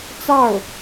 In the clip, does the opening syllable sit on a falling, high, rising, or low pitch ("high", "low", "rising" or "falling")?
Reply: falling